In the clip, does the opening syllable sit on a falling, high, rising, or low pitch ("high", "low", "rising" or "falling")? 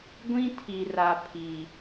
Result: high